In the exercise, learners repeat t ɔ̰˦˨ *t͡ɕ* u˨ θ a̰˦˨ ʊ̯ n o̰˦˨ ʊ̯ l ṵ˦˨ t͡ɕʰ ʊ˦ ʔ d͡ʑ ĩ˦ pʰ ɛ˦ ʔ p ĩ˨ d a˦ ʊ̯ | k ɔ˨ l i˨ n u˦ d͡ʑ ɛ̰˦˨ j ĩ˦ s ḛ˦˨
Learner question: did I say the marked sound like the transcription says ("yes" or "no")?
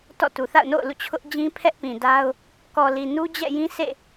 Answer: no